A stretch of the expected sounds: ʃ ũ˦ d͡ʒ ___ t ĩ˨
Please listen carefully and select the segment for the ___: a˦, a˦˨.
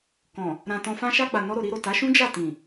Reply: a˦˨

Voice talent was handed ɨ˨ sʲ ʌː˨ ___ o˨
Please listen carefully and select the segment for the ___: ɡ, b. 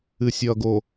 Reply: ɡ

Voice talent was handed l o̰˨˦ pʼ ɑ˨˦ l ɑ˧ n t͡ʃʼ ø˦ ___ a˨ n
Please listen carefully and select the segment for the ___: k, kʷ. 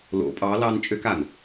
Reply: k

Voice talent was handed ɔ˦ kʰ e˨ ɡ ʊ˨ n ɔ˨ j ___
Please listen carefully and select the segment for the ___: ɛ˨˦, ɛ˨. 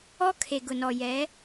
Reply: ɛ˨˦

